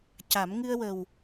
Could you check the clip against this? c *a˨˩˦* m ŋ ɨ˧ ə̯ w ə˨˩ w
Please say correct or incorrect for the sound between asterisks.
correct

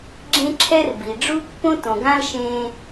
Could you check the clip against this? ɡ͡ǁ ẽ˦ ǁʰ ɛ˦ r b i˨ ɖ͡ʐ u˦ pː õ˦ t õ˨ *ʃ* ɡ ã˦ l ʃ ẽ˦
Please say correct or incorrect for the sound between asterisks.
incorrect: none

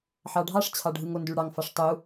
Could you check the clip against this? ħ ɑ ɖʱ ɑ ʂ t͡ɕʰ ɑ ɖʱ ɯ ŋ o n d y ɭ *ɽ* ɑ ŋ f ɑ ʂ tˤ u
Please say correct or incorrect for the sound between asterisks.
correct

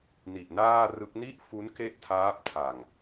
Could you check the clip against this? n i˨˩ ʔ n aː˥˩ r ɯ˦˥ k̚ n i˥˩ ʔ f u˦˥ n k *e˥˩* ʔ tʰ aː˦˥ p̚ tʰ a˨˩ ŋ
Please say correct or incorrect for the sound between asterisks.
correct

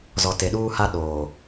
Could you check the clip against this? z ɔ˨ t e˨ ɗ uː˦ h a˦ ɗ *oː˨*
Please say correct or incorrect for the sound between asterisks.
correct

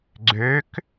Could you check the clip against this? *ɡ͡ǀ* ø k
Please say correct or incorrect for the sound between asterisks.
correct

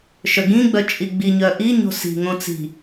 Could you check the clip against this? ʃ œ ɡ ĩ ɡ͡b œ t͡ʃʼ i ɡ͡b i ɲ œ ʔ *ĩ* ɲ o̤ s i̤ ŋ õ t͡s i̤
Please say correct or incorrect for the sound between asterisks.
incorrect: i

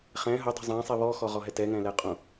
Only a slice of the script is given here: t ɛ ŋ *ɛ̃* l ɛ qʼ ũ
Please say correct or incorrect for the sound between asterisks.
correct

